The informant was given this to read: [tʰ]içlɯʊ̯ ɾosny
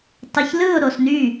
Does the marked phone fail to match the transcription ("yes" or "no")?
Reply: yes